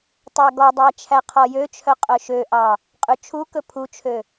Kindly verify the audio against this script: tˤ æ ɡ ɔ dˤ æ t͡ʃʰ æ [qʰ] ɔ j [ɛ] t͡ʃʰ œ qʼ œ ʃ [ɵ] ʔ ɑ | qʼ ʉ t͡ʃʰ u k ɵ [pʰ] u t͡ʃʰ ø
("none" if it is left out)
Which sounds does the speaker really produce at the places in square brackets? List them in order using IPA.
qʰ, ø, ø, pʰ

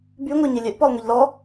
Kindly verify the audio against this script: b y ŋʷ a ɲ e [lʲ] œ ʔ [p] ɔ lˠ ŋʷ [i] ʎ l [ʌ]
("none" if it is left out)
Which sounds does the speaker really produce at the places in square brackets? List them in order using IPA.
lʲ, p, i, ɔ

